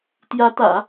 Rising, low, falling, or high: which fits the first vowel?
rising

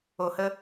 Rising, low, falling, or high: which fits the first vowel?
low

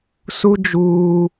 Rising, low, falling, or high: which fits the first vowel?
high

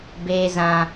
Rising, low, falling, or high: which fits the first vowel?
high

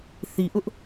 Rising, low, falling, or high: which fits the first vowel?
low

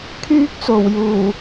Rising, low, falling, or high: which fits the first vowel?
high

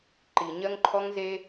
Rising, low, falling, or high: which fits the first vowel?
low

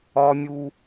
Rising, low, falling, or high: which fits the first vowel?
high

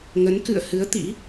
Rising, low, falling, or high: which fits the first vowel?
rising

